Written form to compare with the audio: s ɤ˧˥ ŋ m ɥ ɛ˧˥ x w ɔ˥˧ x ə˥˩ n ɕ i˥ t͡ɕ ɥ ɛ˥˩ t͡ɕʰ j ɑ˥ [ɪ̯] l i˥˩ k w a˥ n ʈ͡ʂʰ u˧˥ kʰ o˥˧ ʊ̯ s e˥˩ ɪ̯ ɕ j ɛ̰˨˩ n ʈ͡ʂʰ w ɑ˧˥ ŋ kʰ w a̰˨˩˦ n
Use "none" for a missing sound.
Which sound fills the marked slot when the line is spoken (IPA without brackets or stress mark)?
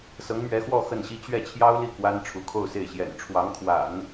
ʊ̯